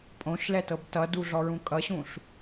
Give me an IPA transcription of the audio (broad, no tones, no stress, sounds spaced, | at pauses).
pʼ õ ʃ l ɛ t ɤ b t ʌ d u ɮ ɔ ɹ ũ kʼ ʌ ɕ ũ ɬ